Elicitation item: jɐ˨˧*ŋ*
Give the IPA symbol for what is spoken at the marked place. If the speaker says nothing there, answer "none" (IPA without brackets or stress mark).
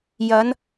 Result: n